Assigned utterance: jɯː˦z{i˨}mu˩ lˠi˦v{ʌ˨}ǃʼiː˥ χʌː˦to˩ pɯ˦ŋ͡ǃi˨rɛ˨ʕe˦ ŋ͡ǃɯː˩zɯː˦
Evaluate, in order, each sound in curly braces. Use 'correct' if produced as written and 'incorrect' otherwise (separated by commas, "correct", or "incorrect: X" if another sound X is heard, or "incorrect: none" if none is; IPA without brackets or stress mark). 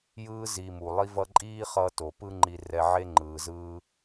correct, incorrect: ʌ˦